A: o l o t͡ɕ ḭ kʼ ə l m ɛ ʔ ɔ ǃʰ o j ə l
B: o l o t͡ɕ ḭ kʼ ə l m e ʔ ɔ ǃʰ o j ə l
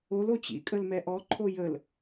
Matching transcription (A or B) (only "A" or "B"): A